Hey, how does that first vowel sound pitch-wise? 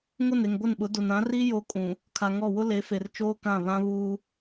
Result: falling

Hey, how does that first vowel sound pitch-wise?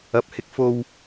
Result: low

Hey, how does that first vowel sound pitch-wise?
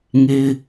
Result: high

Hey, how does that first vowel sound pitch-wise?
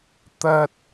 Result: high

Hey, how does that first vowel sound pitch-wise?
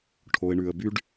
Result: low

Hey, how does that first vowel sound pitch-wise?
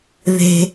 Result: high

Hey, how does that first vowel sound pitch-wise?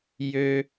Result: high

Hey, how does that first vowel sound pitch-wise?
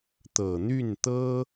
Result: low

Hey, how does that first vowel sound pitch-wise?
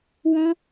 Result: high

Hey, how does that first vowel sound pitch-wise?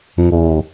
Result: low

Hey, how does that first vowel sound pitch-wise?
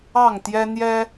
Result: falling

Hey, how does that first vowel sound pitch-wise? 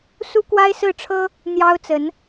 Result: high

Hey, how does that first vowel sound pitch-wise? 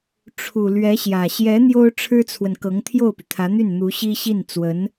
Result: low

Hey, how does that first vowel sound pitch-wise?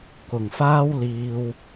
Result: low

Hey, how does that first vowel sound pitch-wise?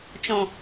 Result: low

